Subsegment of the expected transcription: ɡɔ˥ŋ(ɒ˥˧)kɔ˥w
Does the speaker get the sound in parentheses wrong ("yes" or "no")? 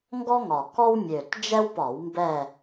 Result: yes